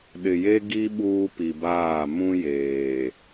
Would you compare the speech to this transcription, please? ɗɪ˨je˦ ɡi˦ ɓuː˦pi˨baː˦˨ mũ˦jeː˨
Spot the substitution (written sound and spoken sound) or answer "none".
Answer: none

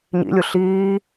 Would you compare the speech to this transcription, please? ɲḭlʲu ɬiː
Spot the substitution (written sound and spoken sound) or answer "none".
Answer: none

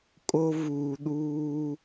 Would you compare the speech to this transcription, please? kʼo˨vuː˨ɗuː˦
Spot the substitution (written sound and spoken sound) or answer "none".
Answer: o˨ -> o˦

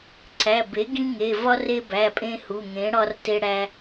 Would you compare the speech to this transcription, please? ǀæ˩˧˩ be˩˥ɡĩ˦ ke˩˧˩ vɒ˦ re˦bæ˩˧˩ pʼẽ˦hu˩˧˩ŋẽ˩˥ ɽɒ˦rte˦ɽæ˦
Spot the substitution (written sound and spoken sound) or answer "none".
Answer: k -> ŋ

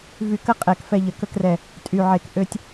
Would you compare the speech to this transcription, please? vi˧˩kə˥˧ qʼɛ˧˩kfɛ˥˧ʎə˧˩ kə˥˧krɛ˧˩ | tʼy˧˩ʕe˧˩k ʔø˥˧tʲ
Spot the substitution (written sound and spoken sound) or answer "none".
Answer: i˧˩ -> y˧˩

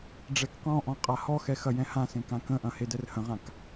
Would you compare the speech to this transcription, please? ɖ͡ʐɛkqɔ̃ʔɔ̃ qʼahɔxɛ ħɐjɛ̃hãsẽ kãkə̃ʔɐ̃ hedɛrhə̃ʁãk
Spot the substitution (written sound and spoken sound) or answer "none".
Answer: ħ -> x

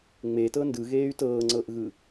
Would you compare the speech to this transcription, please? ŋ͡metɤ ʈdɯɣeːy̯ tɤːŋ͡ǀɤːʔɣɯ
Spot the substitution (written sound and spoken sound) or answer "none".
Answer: ʈ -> n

